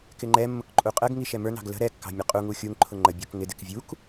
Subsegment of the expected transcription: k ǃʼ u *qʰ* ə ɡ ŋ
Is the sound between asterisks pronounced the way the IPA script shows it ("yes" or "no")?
no